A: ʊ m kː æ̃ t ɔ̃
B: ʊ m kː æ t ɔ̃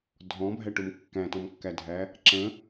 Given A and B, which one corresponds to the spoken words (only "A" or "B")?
A